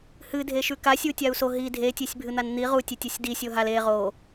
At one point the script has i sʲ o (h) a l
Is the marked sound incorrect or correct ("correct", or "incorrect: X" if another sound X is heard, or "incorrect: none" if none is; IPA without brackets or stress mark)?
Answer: incorrect: ɦ